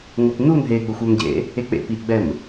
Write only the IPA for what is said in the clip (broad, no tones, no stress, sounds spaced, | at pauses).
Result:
ŋʷ ɛ p n u n ɦ e ɡ͡b ə xʷ œ m ɟ ḛ | e k͡p ḛ p i ʔ ɡ͡b ɛ m